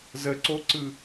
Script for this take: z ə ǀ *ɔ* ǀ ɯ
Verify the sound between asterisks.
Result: incorrect: o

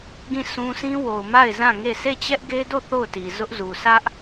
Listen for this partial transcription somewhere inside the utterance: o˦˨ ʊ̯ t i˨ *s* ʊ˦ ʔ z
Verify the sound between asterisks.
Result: incorrect: z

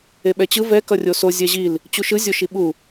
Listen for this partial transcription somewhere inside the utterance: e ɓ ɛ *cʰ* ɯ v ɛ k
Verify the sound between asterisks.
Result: incorrect: t͡ɕ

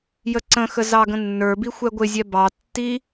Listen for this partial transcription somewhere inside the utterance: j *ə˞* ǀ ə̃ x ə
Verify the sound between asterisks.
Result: incorrect: ə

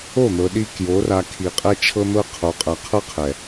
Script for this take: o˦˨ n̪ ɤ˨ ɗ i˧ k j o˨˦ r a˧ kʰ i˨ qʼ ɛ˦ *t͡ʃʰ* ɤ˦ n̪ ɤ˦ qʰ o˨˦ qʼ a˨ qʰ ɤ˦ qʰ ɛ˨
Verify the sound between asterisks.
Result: correct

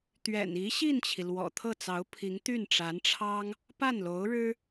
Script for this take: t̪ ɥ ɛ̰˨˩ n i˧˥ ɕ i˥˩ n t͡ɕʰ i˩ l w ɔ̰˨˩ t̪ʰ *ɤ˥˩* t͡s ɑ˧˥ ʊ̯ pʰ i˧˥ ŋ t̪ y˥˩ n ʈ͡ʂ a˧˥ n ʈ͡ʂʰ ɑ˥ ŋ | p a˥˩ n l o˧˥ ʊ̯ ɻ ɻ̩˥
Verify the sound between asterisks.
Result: correct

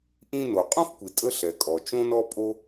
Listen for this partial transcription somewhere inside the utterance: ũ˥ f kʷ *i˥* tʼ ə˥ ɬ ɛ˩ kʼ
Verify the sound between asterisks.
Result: incorrect: i˩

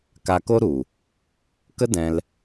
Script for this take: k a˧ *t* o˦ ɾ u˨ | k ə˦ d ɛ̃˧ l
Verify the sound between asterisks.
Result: incorrect: k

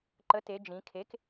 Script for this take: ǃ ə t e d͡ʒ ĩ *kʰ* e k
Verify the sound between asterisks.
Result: correct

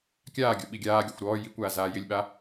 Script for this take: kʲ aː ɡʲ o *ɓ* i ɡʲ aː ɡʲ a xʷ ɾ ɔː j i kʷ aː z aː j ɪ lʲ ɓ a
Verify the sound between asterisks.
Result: correct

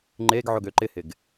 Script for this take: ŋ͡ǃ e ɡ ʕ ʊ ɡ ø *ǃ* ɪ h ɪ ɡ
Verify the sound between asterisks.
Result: correct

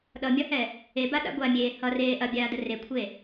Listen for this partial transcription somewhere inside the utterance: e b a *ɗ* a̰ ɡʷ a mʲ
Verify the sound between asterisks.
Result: correct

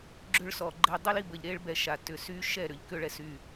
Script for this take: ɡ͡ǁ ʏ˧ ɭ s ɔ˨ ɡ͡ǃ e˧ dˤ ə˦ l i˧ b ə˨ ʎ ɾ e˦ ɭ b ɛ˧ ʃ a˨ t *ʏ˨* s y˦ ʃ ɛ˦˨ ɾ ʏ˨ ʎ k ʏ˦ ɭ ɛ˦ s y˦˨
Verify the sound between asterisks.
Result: correct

